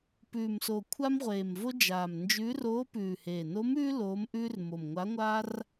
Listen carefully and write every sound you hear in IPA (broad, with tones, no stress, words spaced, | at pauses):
pʉː˨˩mso˨˩ kʷʰa˥mʁʷeː˨˩mvo˥ d͡ʒaː˨˩mnd͡ʒʉː˧˥r oː˧˥pʉː˨˩heː˨˩ no˧˥mʉː˥ loː˧˥mʔʉː˥r mo˨˩mŋʷa˧˥ŋʷaː˥r